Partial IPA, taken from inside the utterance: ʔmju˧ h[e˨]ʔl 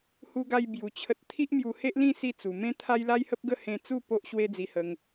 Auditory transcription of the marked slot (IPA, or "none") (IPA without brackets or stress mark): e˦